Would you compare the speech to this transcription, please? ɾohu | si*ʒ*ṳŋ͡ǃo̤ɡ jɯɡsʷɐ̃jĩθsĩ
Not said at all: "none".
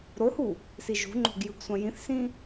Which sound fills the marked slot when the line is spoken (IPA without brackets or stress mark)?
ʒ